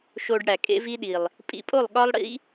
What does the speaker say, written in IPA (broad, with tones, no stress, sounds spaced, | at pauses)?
ʃ o˧ ɖ ɽ æ˨ kʼ ḛ˦ v i˦ ɗ i˨ lˠ | pʼ ḭ˧ pʼ o˦˨ lˠ ɠ ɒ˦ lˠ ɽ ḭ˦